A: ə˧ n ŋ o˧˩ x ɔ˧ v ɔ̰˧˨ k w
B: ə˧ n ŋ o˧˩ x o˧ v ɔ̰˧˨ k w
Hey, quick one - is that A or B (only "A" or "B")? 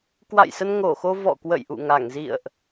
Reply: B